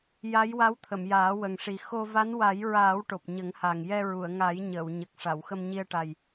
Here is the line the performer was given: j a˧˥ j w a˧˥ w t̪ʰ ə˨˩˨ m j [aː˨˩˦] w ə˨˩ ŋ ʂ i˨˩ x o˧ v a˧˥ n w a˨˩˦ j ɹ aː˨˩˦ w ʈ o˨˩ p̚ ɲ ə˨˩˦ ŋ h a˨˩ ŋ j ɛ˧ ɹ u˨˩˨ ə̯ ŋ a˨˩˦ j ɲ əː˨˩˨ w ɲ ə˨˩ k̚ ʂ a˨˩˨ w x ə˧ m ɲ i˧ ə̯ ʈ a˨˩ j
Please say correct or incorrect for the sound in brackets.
correct